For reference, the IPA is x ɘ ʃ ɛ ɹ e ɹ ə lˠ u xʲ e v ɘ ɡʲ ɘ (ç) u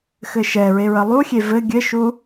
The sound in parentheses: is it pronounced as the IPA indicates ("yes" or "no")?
no